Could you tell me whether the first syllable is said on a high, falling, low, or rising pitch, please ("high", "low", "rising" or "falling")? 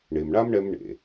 low